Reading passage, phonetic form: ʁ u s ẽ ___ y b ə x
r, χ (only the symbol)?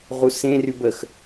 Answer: r